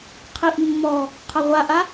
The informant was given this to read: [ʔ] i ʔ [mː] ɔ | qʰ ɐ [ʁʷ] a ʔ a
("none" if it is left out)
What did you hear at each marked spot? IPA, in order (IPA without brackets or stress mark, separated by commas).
qʰ, mː, ʁʷ